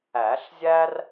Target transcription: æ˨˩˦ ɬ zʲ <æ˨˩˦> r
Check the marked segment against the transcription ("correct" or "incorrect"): incorrect